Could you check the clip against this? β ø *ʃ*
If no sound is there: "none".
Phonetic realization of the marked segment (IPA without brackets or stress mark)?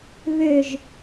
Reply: ʒ